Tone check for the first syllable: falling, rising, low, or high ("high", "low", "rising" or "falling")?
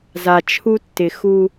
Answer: low